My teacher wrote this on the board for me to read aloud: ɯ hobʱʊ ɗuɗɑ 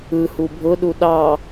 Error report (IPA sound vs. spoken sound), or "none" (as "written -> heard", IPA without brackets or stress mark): o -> u